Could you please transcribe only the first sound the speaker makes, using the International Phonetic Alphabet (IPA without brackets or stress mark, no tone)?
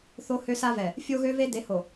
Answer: θ